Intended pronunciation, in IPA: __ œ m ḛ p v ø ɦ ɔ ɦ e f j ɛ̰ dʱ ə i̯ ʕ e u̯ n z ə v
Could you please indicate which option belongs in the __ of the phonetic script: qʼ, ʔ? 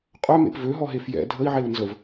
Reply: qʼ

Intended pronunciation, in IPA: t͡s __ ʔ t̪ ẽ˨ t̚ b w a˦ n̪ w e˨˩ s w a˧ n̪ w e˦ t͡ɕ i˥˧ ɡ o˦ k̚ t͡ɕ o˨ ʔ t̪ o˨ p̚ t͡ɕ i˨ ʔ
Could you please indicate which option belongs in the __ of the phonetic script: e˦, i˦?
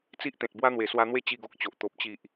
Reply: i˦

